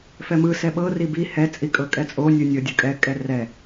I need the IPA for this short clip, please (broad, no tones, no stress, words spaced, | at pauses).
fɛmɯ sɛɓɤ ribi hɛ t͡sʼikʼɤkʼɛt͡sʼo nʲɯnʲɤ dʲɯkʼɛ kʼɛrɛ